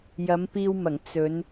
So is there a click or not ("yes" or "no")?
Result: no